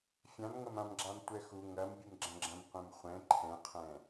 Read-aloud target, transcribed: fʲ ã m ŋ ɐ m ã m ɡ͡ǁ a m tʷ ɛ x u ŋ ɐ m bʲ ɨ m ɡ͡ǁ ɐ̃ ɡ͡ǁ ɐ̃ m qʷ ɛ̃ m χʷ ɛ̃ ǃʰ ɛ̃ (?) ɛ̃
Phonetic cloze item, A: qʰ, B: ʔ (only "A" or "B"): A